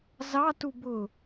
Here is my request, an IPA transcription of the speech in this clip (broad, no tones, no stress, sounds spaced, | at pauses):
z ɑ t u b ʊ